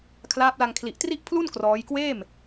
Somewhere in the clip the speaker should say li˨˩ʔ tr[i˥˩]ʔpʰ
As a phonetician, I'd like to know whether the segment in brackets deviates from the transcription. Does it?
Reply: no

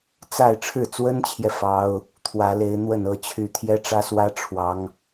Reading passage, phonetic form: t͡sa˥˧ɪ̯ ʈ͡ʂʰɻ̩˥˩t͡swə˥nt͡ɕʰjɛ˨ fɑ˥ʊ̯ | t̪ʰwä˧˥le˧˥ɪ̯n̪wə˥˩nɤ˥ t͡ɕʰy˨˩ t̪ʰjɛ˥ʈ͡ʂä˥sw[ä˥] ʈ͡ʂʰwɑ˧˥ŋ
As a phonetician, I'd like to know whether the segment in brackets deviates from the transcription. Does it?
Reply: no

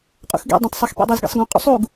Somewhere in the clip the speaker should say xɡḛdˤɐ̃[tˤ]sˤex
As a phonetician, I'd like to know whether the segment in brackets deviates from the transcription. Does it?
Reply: no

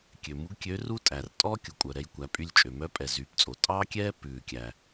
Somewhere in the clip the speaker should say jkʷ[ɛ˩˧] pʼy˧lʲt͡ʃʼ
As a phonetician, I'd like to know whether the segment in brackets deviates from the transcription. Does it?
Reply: yes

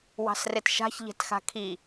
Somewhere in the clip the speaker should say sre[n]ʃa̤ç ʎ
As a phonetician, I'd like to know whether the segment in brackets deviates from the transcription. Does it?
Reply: yes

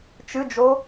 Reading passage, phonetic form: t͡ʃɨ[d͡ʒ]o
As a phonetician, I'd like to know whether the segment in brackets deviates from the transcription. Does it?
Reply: no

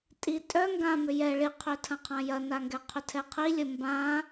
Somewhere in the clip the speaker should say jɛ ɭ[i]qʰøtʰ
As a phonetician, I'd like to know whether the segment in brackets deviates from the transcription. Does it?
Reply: no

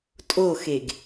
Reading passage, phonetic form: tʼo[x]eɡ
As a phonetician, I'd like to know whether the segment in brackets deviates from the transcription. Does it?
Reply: no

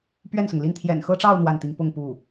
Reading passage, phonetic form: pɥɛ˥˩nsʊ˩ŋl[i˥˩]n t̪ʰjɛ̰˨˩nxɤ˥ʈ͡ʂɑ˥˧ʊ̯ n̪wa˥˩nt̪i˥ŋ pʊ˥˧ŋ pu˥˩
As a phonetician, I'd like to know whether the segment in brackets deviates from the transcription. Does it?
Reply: no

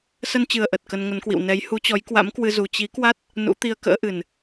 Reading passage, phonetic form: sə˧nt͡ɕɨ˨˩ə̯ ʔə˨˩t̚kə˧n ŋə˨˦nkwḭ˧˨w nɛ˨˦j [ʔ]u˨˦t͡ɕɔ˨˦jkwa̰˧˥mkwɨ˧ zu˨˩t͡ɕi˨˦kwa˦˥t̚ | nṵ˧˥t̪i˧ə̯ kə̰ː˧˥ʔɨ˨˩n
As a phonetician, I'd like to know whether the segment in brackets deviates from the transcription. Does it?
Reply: yes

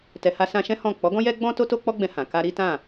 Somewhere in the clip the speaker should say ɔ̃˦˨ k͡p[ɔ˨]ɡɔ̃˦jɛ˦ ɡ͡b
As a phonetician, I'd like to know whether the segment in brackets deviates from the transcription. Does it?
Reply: yes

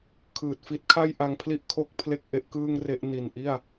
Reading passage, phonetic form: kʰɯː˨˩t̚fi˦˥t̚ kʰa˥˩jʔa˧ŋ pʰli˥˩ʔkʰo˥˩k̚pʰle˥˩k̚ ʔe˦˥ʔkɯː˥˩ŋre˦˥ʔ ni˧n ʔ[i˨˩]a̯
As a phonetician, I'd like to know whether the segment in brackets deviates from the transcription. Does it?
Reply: yes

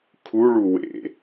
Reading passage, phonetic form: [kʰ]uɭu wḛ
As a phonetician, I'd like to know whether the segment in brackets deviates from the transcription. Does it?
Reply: no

